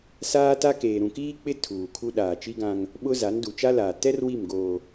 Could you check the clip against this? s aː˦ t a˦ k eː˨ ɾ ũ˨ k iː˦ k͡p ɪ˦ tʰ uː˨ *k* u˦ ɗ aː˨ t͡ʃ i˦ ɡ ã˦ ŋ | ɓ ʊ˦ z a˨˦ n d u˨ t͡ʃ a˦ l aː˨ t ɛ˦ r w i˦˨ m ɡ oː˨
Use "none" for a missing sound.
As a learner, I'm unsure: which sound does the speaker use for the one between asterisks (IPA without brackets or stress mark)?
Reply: kʰ